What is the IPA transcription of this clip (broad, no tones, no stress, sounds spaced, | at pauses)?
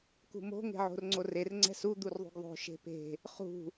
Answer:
k ṳ m o̤ ŋ e̤ ʕ o̤ r ŋ͡ǀ o r e r ŋ͡ǀ ɛ̤ s u d̪ u r ðˤ ṳ ɡ ðˤ o̤ ʃ e̤ p e̤ | χ ṳ